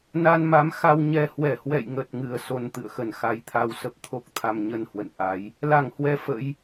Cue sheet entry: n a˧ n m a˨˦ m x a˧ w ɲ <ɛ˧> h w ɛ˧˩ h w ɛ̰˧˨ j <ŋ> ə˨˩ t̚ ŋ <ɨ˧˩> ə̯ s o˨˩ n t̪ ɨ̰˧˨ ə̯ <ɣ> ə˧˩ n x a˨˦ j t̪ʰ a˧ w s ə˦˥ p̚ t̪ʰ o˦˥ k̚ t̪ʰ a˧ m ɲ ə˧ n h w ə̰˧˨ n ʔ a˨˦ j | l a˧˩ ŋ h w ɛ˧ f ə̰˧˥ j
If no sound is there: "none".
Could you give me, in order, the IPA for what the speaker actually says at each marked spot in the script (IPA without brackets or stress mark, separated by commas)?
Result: ɛ˧, ŋ, ɨ˧˩, x